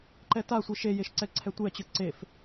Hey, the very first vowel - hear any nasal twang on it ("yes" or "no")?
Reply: no